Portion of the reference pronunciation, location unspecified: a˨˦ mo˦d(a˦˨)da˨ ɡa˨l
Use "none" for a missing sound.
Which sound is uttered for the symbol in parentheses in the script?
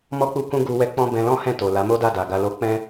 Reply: a˦˨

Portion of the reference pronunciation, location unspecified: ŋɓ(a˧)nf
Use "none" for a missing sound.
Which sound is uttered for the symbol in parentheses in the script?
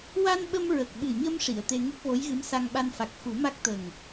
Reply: a˧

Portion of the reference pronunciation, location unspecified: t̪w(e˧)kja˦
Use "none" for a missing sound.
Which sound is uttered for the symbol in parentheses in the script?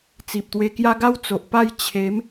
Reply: e˧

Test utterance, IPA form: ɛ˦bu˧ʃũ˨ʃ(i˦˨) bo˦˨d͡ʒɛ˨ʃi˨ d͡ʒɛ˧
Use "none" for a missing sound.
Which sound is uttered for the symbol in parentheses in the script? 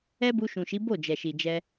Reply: i˨˦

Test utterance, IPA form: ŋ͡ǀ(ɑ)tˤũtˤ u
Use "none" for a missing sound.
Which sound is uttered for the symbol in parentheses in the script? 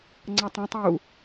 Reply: ɑ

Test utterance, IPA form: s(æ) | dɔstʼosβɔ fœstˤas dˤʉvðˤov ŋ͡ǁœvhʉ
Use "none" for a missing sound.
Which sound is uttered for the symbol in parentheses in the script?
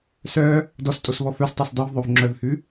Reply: œ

